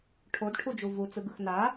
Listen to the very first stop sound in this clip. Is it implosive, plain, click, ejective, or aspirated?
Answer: aspirated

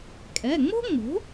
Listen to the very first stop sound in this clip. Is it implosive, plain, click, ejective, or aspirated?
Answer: ejective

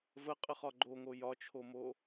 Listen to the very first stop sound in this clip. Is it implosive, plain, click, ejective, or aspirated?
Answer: ejective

